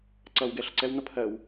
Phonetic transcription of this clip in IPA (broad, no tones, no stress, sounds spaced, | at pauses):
ǀ ʌ w ɡ ɛ ɬ ə ǀ ɛ w n̪ ʌ pʰ ɜ w